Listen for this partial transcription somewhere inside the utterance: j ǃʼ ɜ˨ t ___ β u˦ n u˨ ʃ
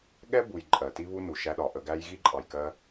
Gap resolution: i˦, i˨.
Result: i˦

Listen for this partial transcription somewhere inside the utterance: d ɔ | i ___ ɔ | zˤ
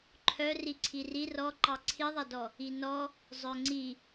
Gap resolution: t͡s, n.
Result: n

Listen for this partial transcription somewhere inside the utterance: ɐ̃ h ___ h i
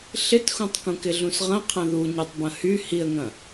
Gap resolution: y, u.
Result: y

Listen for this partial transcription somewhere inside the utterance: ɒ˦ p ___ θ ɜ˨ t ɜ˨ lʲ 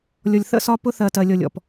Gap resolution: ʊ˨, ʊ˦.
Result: ʊ˦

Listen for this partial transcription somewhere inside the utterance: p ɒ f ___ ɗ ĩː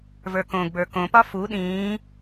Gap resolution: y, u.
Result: u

